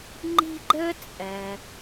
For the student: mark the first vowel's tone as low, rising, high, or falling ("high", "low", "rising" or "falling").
high